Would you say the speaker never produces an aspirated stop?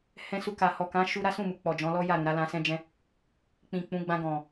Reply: yes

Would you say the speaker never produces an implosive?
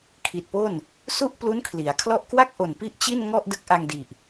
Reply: yes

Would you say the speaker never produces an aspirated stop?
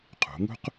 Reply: no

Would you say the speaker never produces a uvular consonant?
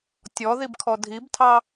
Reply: yes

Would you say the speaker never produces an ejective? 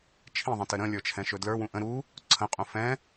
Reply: no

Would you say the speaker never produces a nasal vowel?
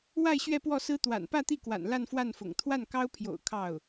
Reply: yes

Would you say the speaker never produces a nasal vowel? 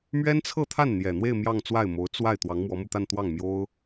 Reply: yes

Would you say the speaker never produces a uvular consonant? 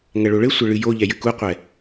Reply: no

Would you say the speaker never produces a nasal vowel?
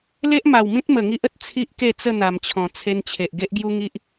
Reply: no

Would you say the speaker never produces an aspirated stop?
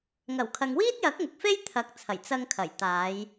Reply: no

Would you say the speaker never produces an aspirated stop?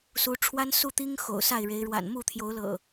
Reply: no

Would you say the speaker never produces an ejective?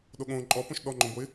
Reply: no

